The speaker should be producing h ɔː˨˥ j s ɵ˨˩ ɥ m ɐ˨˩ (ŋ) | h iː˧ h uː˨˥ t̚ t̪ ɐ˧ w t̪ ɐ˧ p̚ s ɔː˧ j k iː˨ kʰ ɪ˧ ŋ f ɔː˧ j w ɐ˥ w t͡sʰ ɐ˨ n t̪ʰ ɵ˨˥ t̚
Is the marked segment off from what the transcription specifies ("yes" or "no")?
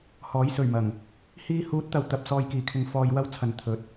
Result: no